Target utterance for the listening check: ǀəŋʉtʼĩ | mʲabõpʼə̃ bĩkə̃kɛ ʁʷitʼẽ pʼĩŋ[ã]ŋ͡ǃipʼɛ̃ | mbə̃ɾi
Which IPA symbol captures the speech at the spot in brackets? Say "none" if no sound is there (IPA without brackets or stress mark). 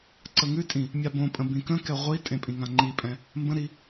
ã